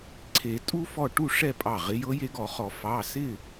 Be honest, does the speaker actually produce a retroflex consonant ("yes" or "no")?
yes